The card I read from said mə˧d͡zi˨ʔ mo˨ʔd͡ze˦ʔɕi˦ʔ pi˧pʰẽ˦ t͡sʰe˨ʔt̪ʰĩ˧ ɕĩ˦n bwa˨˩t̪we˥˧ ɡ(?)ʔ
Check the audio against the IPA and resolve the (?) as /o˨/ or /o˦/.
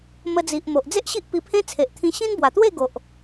o˨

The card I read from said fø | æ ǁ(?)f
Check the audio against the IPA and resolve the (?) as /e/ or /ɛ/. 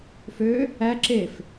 e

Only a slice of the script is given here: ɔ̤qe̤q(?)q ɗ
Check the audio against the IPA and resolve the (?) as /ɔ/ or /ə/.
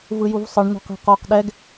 ɔ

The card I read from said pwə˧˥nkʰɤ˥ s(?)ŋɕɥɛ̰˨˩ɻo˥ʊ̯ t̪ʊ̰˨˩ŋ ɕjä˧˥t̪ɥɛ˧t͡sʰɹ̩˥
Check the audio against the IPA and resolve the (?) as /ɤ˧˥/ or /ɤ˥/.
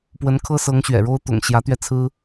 ɤ˧˥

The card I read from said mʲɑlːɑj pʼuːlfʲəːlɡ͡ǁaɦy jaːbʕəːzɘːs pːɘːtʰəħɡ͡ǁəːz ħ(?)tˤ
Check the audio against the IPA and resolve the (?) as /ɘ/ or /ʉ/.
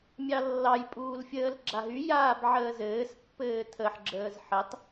ɘ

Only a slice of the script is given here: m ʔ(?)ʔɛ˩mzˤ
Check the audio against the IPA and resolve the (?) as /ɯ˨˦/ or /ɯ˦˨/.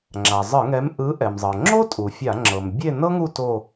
ɯ˨˦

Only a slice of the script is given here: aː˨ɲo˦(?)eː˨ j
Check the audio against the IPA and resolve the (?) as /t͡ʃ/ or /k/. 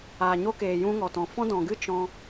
k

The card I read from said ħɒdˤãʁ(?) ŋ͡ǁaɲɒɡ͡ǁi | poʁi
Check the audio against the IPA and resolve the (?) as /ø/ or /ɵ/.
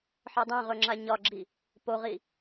ɵ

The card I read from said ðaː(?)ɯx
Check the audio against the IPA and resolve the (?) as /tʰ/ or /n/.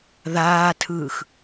tʰ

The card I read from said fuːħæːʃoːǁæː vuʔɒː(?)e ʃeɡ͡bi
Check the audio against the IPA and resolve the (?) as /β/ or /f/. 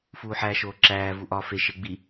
f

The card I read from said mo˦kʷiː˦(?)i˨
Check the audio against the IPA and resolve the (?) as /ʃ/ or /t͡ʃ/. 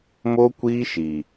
ʃ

